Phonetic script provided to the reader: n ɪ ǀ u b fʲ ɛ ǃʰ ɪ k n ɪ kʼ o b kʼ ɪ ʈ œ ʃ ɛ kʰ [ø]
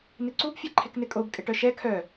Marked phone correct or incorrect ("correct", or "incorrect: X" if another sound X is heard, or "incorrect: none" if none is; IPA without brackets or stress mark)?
incorrect: œ